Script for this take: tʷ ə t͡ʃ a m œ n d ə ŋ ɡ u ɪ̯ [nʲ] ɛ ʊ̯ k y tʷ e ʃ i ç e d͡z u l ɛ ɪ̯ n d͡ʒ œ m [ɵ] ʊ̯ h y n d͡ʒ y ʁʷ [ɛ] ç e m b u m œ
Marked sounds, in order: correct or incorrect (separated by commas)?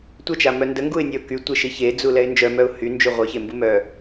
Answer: correct, incorrect, incorrect